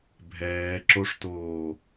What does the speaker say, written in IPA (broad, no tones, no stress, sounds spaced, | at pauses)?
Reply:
bʱ ɛː ǁ o ʂ t oː